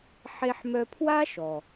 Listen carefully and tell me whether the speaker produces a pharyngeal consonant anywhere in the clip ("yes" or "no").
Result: yes